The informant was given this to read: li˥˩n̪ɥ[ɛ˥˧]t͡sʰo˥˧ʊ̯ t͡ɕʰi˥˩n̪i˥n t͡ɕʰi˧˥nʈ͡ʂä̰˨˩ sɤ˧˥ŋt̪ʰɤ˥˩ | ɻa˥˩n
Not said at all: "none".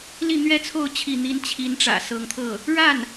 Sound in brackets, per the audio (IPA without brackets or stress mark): ɛ˥